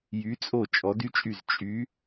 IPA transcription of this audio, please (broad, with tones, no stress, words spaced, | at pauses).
jy˨˥t͡sʼo˥˩ t͡ʃʼɔ˨˥dy˥t͡ʃʼy˥˩z t͡ʃʼy˨˥